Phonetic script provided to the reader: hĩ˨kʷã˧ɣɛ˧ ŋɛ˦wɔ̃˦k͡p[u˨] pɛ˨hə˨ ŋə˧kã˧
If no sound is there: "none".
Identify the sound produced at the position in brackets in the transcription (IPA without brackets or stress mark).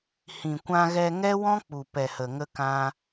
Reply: u˨